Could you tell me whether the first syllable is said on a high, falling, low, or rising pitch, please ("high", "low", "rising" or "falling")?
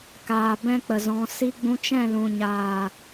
low